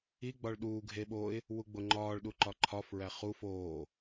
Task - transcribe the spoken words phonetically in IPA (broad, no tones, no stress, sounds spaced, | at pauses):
i ɡ͡b ɒ ɭ ɗ uː ɡʱ e ɓ o ɪ̯ | w u ɡ͡b o ŋ͡ǃ ɒː ɭ ɗ u ǃ ɒ ǃʰ ɒ f ɹ æ χ u f oː